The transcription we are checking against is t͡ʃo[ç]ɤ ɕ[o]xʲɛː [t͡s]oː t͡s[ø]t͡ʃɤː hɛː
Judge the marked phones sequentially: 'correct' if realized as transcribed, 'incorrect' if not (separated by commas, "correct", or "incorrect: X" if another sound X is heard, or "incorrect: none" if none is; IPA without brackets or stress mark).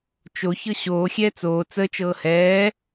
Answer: correct, incorrect: oː, correct, incorrect: ə